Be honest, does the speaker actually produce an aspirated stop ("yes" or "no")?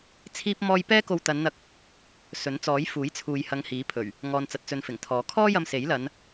yes